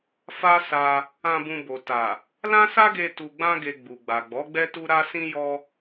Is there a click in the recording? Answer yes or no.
no